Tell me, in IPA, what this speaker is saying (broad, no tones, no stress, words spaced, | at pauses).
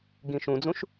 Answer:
ɡĩʃũd͡zũʃ